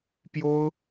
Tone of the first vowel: high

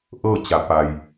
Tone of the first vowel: falling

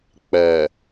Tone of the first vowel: low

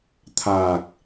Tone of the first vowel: low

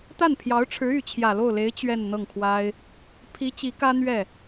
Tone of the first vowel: falling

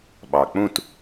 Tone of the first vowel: low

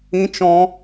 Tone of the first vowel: high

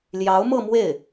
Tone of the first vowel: rising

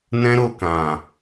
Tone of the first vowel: high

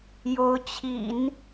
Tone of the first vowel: rising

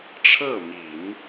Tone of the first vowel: falling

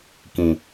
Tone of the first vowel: low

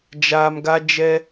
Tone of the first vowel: low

